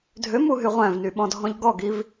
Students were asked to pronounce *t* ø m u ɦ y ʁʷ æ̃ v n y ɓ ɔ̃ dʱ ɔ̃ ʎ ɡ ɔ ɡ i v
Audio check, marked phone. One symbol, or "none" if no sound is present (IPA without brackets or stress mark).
dʱ